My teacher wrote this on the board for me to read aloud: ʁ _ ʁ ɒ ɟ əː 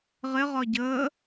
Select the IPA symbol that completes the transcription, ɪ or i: ɪ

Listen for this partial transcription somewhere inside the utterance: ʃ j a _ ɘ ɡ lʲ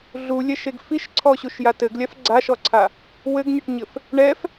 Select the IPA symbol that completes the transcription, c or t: t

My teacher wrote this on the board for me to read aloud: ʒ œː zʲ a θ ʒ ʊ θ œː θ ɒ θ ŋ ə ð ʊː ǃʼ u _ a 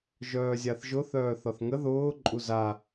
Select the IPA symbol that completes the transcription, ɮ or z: z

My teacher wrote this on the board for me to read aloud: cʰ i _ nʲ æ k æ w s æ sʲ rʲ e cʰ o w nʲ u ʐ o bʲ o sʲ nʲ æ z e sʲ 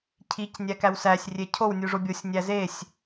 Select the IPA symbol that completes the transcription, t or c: c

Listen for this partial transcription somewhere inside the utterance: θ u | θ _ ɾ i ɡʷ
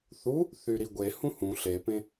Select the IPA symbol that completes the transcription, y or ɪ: y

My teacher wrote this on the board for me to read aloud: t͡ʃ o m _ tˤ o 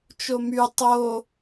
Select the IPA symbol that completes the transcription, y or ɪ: y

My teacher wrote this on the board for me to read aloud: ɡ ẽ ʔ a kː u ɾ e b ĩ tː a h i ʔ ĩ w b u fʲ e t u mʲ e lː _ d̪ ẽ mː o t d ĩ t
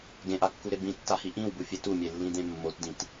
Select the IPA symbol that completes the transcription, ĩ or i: ĩ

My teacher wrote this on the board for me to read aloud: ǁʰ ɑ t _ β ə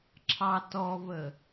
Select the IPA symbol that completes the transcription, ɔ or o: ɔ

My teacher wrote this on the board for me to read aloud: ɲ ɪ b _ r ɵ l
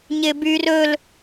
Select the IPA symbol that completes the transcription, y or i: y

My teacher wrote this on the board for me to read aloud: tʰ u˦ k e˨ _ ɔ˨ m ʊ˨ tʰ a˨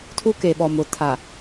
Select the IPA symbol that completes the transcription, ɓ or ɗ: ɓ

